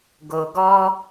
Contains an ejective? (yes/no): no